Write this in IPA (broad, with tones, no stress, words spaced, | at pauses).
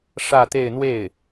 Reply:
ʂä˥˧t̪e˥˧ɪ̯ n̪we˥˩ɪ̯